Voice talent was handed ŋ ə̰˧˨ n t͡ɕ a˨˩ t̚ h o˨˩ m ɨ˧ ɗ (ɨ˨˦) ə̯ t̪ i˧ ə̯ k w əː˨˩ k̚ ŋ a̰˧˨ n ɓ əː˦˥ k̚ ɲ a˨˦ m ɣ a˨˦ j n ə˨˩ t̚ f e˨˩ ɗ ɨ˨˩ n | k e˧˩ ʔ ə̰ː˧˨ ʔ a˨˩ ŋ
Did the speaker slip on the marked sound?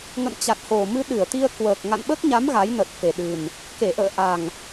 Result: yes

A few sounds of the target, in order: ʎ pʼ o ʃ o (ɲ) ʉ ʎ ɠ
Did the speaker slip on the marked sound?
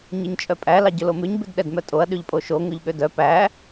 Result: yes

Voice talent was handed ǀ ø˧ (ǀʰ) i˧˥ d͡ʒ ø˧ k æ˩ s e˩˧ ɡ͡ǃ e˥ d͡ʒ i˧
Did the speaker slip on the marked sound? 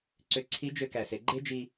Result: no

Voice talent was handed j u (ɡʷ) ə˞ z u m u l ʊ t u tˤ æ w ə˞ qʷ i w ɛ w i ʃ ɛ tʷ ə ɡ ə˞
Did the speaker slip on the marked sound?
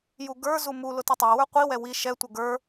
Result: yes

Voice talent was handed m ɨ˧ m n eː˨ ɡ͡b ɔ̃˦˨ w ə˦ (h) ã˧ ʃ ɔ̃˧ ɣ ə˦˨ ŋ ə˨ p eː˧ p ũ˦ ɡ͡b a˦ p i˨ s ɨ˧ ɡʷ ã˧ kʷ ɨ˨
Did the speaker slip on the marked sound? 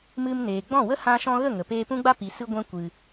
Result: no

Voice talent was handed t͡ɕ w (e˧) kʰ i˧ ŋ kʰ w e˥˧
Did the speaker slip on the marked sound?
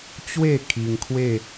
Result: yes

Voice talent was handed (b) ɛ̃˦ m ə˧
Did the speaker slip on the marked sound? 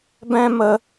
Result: no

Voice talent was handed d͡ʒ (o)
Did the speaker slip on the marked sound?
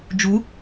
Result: yes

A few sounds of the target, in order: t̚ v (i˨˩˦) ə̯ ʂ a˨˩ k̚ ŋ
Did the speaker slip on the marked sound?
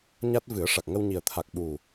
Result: yes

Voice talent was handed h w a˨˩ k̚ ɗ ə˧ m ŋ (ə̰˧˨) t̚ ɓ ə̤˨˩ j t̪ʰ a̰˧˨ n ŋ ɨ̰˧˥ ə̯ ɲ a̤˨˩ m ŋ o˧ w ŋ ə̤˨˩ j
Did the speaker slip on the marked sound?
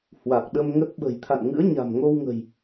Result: yes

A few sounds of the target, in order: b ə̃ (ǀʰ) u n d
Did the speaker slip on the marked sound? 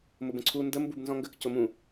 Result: no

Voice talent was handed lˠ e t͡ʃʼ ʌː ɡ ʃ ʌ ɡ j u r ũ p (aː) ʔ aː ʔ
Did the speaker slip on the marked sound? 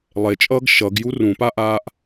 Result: yes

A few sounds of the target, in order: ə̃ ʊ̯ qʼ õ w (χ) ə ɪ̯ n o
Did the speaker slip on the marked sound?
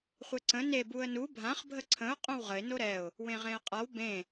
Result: yes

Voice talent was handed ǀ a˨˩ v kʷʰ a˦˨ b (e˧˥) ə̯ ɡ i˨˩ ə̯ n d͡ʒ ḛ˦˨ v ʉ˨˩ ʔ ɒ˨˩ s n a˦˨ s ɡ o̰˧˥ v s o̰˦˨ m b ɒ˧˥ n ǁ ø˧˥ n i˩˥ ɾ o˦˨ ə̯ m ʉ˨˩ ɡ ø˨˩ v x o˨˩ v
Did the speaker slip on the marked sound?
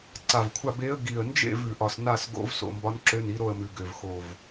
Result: no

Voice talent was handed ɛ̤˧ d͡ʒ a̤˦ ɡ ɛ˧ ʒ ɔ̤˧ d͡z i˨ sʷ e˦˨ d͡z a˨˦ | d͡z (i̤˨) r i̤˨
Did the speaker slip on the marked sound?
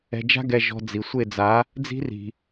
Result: yes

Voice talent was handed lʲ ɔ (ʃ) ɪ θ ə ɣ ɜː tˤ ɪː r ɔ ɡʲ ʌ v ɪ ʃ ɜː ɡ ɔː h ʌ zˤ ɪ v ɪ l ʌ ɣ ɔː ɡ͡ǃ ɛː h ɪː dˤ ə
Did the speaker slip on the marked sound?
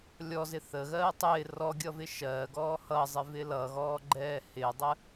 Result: yes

